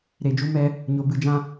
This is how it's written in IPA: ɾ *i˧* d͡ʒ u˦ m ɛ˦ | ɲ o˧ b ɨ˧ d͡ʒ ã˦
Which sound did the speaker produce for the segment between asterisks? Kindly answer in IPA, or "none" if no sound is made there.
e˧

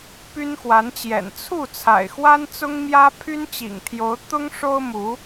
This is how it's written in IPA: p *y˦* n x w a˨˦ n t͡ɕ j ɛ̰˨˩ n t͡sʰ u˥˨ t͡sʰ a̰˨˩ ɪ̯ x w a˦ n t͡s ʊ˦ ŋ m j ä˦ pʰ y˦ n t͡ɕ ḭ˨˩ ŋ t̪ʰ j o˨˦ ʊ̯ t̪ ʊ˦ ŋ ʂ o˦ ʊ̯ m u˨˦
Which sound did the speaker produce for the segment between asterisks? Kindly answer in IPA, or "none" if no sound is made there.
y˦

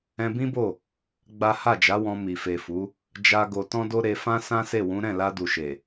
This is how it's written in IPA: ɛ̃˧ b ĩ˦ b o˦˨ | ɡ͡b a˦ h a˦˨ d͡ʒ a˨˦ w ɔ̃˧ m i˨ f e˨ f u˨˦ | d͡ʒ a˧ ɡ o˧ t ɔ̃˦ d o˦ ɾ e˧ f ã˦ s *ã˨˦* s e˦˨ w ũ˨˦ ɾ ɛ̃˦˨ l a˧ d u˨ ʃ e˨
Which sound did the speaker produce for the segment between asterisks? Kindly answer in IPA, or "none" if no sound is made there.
ã˦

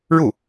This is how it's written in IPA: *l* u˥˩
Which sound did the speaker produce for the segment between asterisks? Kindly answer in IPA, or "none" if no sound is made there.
ɻ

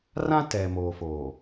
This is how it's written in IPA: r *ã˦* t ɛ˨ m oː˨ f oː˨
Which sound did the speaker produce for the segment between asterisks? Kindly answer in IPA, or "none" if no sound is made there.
ã˦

